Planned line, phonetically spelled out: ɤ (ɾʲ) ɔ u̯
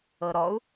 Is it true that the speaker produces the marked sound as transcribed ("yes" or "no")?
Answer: no